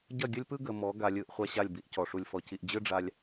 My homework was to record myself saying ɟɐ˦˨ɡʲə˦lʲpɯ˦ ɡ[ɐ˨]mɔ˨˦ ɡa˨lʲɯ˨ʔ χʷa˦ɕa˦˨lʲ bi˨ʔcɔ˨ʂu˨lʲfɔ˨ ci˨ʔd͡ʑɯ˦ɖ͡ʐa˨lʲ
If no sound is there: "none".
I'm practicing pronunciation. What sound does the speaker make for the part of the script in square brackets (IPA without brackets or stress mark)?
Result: ə˨